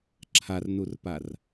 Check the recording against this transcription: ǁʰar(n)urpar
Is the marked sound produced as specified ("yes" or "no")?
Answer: yes